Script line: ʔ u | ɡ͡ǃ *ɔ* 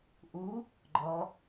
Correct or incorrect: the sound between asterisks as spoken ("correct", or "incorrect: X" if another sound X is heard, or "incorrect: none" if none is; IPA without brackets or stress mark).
correct